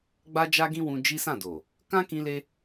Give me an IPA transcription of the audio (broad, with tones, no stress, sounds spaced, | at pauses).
ɡ͡b a˦ d͡ʒ a˦ ɡ ĩ˦ w ũ˧ d͡ʒ i˦ s ã˦˨ d o˨ | k ã˦ k ĩ˧ l e˧